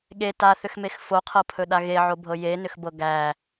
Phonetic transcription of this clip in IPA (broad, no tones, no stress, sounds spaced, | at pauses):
ɠ e t a θ ʏ x m e x f o qʰ ɤ pʰ ɵ ɗ a ɣ e ʕ o bʱ ɤ j e n ʏ x b ɤ ɡ æ